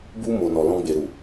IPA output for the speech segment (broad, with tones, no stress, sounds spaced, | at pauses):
b u˧ m o˨ n ɔ˨ l ɔ̃˧ ɡ͡b e˨ ɾ u˨